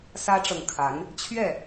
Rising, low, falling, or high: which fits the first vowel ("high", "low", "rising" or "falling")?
high